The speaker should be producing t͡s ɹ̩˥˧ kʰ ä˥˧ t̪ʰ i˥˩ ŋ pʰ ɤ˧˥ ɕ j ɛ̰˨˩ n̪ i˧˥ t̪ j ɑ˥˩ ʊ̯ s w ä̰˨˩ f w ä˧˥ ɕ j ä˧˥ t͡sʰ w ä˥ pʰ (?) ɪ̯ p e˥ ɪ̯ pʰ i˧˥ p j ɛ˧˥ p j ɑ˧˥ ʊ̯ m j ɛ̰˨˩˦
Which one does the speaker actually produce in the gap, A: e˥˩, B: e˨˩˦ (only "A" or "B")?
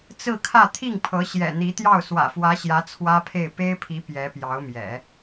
A